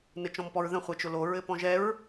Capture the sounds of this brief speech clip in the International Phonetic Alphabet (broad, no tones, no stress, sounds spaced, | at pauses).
n ɘ t͡ʃ ɔ̃ m p ɔ ɹ ð ə̃ χʷ ɛ t͡ʃ ʊ l o ɹ ɘ p ɔ̃ ʒ ɛ ɹ